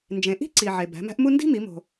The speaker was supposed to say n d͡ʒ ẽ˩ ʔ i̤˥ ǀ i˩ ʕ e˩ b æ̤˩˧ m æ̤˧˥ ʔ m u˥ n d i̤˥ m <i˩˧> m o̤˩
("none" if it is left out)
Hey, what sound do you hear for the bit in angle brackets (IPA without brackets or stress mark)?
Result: i˩˧